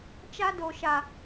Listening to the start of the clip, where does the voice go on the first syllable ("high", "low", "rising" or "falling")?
high